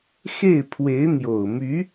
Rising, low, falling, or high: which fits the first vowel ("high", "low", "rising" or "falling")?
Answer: falling